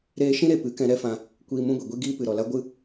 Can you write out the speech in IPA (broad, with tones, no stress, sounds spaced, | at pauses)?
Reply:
ɾ eː˧ ʃ ĩ˦ ɾ e˨ p ɨ˨˦ k ɛ̃˧ ɾ ɛ˦ f ã˧ | kʷ iː˧ m ũ˦ ɡʷ i˨ ɡʷ i˦ ɡ iː˦ p ɨ˨ ɾ ɔ˨ l a˦ ɡʷ ɨ˦